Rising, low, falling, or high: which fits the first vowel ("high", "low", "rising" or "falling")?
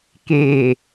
low